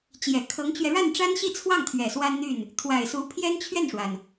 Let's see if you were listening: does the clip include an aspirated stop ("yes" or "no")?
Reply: yes